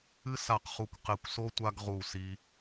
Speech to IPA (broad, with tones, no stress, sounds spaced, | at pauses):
ɨ˥ s a˦˨ q χ u˦˨ kʷ q e˦˨ kʷ s o˥ tʷ a˥ ɡ ʁ u˦˨ s i˥